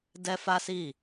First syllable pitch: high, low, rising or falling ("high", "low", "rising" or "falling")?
high